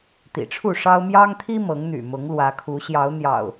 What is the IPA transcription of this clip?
t̪ ḭ˨˩ ʈ͡ʂʰ u˥˨ ʂ ɑ˦ ʊ̯ m j ɑ˦ ŋ t̪ʰ i˦ m ɤ˨˦ ŋ n̪ y̰˨˩ m ʊ˨˦ ŋ l w ä˨˦ kʰ u˨˦ ɕ j ɑ˨˦ ʊ̯ n̪ j ɑ̰˨˩ ʊ̯

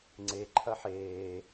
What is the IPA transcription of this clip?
ŋ͡ǀ e ǃʰ ɐ ħ eː

